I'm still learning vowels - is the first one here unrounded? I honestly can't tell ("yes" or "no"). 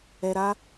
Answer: yes